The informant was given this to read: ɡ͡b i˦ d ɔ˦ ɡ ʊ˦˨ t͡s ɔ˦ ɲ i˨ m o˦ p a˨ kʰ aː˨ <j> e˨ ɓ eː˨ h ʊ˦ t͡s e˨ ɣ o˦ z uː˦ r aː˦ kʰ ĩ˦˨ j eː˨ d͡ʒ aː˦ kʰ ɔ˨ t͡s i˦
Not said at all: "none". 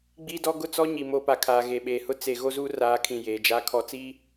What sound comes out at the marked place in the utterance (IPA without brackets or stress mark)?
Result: ɣ